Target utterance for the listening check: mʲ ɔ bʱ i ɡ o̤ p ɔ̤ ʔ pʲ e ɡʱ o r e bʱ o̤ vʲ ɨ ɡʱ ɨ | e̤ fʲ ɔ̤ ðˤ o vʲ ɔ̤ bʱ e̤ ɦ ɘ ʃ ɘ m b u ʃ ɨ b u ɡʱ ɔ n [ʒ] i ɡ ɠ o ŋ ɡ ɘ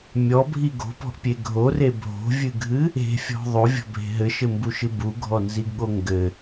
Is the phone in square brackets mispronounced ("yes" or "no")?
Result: yes